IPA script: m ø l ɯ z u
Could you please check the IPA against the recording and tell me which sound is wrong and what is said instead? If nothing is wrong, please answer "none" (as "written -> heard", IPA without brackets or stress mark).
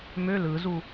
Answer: none